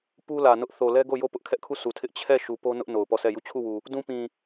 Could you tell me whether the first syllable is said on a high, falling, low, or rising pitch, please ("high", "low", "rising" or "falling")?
high